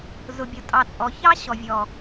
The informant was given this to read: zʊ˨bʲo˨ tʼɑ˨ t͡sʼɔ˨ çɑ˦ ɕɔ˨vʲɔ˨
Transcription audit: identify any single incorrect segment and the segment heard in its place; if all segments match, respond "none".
none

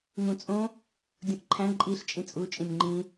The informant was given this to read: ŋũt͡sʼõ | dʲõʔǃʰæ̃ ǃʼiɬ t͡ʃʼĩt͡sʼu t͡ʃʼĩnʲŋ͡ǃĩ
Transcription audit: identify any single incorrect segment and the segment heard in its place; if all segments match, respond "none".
none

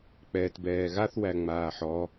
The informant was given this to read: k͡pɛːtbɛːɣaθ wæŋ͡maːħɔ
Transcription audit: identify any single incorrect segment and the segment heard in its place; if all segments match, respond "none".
none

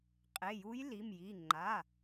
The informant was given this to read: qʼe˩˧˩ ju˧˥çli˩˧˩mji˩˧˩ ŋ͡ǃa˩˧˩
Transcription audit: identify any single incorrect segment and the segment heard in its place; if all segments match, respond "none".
ç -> j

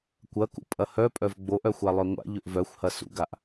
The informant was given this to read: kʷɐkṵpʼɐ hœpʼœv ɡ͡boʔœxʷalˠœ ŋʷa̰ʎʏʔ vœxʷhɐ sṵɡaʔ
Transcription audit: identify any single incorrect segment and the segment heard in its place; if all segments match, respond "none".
none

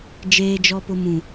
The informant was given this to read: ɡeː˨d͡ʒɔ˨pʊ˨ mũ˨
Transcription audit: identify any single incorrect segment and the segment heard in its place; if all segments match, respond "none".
ɡ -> d͡ʒ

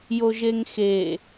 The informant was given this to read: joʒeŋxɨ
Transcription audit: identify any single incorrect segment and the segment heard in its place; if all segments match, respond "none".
ɨ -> e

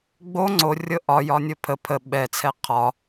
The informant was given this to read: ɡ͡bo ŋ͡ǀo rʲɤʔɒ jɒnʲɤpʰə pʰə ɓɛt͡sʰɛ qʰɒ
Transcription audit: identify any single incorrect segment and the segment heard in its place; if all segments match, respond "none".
none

